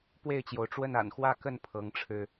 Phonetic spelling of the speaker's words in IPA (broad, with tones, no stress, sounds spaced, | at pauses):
p w e˥˨ ɪ̯ t͡ɕ j o˩ ʊ̯ ʈ͡ʂ w ə˥˨ n a̰˨˩ n x w ä˥˨ k ə˥˨ n pʰ ɤ˨˦ ŋ ʈ͡ʂʰ ɻ̩˧